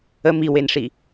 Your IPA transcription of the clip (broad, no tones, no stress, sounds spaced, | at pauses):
ə m i w e n ʂ i